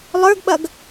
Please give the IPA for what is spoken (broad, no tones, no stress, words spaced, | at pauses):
lˠə˞ɡɓɐɡ